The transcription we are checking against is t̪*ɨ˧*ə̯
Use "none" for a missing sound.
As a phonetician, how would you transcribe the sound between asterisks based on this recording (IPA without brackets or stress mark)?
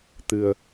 ɨ̤˨˩